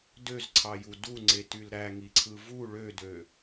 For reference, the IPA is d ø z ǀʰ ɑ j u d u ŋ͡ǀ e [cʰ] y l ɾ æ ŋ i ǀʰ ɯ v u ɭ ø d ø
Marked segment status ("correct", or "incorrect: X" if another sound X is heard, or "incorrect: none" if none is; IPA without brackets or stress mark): incorrect: t